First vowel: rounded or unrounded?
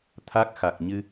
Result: unrounded